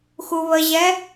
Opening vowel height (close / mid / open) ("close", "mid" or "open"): close